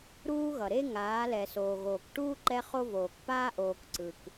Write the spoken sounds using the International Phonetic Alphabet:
ɾ uː˦ ɣ ʌ˨ ɾ e˦ ŋ aː˨˦ l ɛ˨ s oː˨ ɣ oː˨ k ʈ uː˦ ǃ ɛ˦ χ o˦ v oː˨ k p aː˦ ʔ oː˨ k ǀ ɯ˨ k

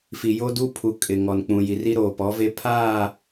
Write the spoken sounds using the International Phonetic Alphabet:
f i˨ j o˦ d u˦ pʰ u˨ kʼ ɪ˨ ŋ ɔ˨ n k͡p ũ˨ j i˨ r i˦ ɾ oː˨ p ɔ˨˦ v e˦ pʰ aː˦˨

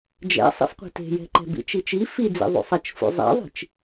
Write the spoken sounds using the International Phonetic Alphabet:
d͡ʒ ɛ̰ sˤ ḭ f qʷ e̤ t e̤ j ɛ̤ ǃ ɛ̤ b ḭ t͡ʃ i t͡ʃ i f i d͡z ḭ ðˤ ṵ sˤ ɛ t͡ʃ f ṵ zˤ ɛ̰ ðˤ i̤ t͡ʃ

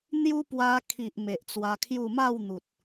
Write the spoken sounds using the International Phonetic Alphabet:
n̪ j u˦ p w a˧ kʰ i˨ ʔ m e˨ ʔ t͡s w a˧ kʰ j u˥˧ m a˥˧ w n̪ u˨ t̚

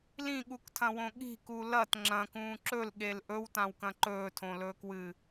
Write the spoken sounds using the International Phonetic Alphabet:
l ĩ ɠ u k tʰ ɐ̃ w õ ɠ i̤ k u l ɐ t ŋ͡ǁ ɐ̃ k ũː ǁ ɵ l ɠ e l ʔ ɵ w t ã w k ɐ̃ ǃ ɵː tʰ õ l ɵː k w ɨ

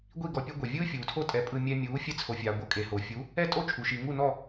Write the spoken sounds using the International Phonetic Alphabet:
ɡʷ i˥˩ ɡ ɔ˧ pʲ ɛ˥ ɡʷ ɛ˩ vʲ ɯː˥ fʲ uː˩ tʰ o˥˩ tʼ ɛ˩˥ pʼ ɯ˧ mʲ ɛ˧ mʲ uː˩˥ fʲ ɛ˧ t͡sʰ o˩ fʲ aː˩ ɡʷ ɤ˥˩ kʼ e˩ h o˩ fʲ u˩˥ | ɛ˥˩ tʼ o˥˩ t͡ʃʰ u˩ ʃ i˩ ŋ u˥˩ n ɔ˥˩

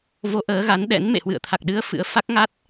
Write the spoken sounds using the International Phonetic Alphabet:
v o˨˦ ʔ əː˨˦ ɣ a˨˦ n ɗ ɛ̰˧˥ n m ḛ˧˨ h w ɨ̰˧˨ ə̯ t̪ʰ a˨˩ k̚ ɗ ɨ˨˦ ə̯ f ɨ̰˧˥ ə̯ f a˦˥ k̚ ŋ a˦˥ t̚

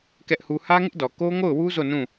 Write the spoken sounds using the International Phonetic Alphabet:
k ɛ˦ ʔ h u˦ h ä˦ ŋ ɪ˦ ʔ d ɔ˨ k o˦ ŋ o˦˨ ʊ̯ w u˦ z o˦˨ n ũ˦˨

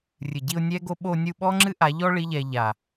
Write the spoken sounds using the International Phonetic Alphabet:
rʲ ɨ˨ ɟ i˧ ʊ̯ nʲ ɛ˦ ɡ o˦ ɓ o˧ nʲ u˧ ɓ ɔ˦ ŋ͡ǁ ɨ˦ ʔ a˨˦ ʎ ɔ˦ ɭ i˦ ʎ ɛ˧ ʎ a˨

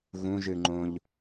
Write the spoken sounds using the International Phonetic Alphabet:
ɣ ũ ʒ ɨ ŋ͡ǃ õ ʎ

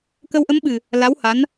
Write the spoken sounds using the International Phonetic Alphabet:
k ə˧ w ʔ ə˧˥ m ɓ ɨ˨˩ | l a˧˥ w h a˧˥ n

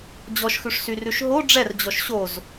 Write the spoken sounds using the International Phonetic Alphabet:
d͡ʑ ɔ ʃ x ʉ ʂ s y r ʉ ʃ ɦ o ɖ͡ʐ ɛ r d͡ʑ ɔ ʃ ɕ o z

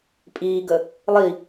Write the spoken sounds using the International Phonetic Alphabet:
pʼ iː ɡ ə | lˠ i

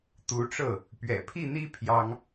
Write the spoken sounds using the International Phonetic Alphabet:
t̪ u˧˥ ʈ͡ʂ ɤ˥˩ | p ɥ ɛ̰˨˩ pʰ i˥˩ n̪ i˥ pʰ j ɑ˥ ŋ

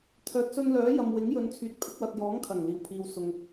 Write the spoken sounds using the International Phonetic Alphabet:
t̪ʰ œː˨ t̚ s ɵ˧ n l œː˨˥ j ɐ˨ m w ɪ˨˥ ŋ j ɵ˨˧ n t͡sʰ yː˨ t̚ pʰ ɪ˨˥ k̚ w ɐ˨ t̚ j ɔː˨˥ ŋ kʰ ɐ˨˩ ŋ l iː˨˩ w pʰ iː˨ w s ʊ˨ ŋ

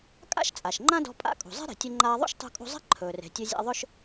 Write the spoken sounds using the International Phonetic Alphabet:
kʼ a̰˥ ʃ t͡sʼ a˩ ʃ ŋ͡ǃ ã˥ d ɔ̤˧ pʼ a̰˥ kʼ ṳ˩ zˤ e̤˥ ɾ e̤˩ tʲ ɵ˧ ŋ͡ǃ aː˧ ðˤ ṵ˥ ʃ tˤ ṳ˧ kʼ ṳ˧ zˤ e̤˥ ǃʰ ɵː˩ r e̤˩ tʲ ɵ˧ zʲ a̰˧ ðˤ ɵ˥ ʃ

